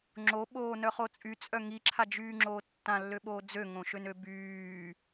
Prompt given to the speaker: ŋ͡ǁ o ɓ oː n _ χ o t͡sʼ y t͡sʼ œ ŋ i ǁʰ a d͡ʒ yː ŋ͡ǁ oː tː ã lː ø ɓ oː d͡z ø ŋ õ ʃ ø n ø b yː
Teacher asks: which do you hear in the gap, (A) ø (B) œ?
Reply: B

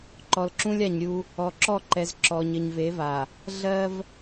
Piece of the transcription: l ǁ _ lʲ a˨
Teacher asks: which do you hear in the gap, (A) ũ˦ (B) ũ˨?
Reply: A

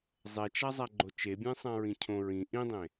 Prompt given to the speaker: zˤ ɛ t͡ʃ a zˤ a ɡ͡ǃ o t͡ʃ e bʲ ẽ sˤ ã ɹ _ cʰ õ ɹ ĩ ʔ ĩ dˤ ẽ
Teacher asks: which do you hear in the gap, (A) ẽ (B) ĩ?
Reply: B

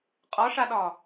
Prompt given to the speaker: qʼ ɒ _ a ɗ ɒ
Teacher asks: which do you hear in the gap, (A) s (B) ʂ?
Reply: B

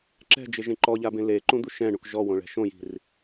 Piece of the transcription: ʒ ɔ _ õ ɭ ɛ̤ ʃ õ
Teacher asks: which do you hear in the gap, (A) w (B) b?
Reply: A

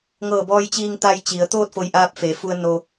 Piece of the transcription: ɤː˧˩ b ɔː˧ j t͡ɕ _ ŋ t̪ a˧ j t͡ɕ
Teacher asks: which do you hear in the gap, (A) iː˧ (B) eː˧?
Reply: A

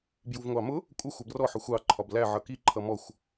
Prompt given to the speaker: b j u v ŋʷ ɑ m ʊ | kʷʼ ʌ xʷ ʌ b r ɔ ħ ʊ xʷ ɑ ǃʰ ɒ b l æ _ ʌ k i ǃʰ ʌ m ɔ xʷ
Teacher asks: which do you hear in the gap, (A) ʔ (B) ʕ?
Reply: B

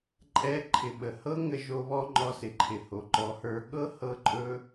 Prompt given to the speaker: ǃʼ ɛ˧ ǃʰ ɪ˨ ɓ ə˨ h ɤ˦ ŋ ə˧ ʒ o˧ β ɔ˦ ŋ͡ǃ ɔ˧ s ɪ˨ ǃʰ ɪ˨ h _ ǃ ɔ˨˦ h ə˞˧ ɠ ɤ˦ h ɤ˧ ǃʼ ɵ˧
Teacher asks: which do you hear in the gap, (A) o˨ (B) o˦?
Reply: A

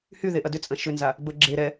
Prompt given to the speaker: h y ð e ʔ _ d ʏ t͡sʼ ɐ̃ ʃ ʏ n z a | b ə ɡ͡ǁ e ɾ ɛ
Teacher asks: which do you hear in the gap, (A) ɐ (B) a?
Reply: A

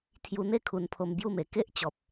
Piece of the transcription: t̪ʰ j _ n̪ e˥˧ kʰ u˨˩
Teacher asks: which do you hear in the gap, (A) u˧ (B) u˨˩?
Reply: A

